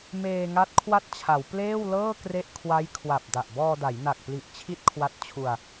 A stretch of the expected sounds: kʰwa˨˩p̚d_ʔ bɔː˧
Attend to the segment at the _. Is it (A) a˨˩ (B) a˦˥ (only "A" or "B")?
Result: A